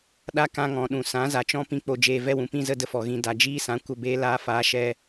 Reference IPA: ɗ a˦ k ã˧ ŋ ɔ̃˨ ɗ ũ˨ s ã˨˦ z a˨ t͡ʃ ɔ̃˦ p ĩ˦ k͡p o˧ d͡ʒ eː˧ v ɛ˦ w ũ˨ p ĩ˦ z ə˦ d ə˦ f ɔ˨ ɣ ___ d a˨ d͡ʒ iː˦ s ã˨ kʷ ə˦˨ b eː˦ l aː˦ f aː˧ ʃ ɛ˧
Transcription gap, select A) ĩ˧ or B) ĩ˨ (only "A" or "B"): A